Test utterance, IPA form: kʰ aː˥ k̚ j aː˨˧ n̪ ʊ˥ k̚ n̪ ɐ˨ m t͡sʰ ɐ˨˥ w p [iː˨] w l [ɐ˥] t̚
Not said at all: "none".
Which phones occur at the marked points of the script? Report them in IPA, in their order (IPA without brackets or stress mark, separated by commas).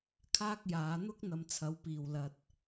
iː˨, ɐ˧